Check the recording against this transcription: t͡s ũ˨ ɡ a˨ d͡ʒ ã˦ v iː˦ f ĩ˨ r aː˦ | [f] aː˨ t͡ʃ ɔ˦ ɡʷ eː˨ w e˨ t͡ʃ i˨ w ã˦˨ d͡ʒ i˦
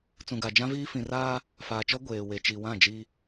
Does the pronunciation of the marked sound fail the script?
no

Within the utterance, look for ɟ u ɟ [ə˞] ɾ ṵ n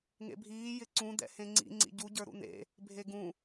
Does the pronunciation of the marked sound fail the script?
no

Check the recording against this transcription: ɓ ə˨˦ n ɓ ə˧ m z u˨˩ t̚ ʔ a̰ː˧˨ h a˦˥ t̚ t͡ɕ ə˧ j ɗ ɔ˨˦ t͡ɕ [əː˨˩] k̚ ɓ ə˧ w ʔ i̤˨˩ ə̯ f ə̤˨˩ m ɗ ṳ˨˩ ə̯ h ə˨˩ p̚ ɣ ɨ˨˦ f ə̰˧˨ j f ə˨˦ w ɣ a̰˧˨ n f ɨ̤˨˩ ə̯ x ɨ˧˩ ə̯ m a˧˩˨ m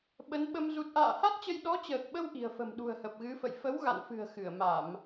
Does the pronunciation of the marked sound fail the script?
no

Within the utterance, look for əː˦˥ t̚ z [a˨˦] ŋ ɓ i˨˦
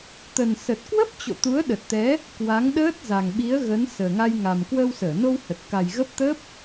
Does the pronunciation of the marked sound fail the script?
yes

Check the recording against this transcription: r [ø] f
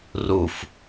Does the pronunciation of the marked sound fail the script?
yes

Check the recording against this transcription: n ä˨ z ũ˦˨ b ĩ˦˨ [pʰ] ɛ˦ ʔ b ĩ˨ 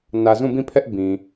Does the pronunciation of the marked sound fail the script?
no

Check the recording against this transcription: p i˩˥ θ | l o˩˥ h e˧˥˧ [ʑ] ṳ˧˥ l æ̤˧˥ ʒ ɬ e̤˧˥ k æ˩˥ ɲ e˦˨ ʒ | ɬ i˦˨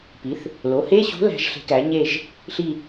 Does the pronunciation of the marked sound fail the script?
yes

